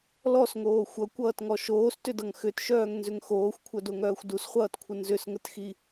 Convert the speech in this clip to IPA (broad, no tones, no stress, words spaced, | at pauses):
lɔsŋoː xʷʌkʷʌːtŋɔ ʃoːstʏdʌŋ xʏtʃœːŋnzʏŋ xoːxʷkʷʰœdoŋœːxʷ dusχʷʌːtkʷʰə nzʏsŋətxi